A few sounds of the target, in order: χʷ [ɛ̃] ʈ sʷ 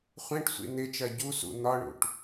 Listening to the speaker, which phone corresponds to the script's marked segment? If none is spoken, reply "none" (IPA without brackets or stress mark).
ɛ̃